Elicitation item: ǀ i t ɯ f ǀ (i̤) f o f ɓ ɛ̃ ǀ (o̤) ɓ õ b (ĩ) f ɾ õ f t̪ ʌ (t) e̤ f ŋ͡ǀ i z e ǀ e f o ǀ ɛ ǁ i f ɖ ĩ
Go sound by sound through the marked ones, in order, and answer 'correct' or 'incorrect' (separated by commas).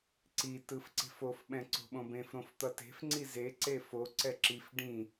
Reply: incorrect, correct, incorrect, correct